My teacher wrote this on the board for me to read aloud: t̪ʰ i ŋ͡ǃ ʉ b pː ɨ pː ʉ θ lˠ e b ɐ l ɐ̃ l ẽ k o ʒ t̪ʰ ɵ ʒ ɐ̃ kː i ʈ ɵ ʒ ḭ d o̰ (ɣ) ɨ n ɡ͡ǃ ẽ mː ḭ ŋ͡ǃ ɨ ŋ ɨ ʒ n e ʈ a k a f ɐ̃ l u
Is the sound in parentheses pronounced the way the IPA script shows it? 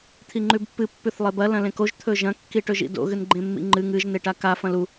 yes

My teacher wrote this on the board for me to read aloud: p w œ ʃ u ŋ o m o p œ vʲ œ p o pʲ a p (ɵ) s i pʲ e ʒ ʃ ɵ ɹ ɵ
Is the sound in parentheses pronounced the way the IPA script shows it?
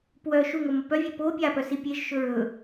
no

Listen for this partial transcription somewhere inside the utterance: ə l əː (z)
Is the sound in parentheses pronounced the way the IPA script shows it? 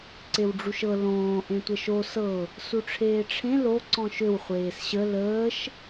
no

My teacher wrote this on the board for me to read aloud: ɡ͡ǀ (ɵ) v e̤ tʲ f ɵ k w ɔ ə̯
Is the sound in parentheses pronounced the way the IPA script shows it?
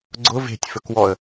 no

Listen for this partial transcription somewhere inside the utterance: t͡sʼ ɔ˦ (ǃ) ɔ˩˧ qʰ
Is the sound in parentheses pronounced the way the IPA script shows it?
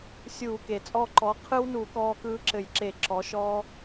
yes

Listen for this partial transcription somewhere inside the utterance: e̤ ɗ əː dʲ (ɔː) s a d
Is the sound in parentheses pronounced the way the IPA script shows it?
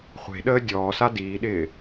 yes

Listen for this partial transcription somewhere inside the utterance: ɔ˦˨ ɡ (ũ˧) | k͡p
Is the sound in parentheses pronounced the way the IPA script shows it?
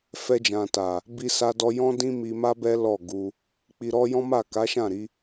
no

